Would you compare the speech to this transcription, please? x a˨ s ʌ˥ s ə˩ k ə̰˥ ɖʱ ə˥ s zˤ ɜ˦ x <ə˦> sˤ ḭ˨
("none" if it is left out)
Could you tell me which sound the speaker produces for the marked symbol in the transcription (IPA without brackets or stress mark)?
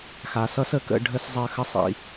ə˥